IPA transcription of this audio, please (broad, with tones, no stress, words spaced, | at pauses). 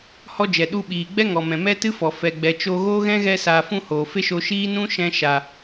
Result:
hɔ˦d͡ʒɛ˨ ɗu˧ɓiː˨ɡ͡bɛ˦ŋɔ˨ mɛ̃˨mɛ˦tɨ˦fɔ˨ fɛ˨ɡ͡bɛ˨ t͡ʃo˧ɣoː˦ ɣɛ̃˦ɣɛ˧saː˨fũ˧ hoː˨fe˦ʃo˧ʃiː˦ nũ˦ʃɛ̃˧ ʃa˨